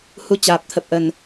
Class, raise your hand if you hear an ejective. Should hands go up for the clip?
no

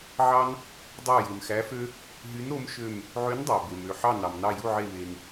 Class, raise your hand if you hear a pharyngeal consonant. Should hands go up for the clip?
yes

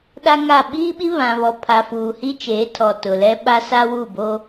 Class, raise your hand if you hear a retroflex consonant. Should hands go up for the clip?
no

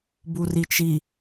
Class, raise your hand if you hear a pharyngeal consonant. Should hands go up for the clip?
no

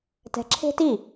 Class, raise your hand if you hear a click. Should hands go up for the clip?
yes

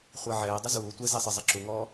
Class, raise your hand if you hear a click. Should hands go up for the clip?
yes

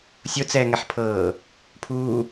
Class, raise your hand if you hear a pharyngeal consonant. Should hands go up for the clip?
yes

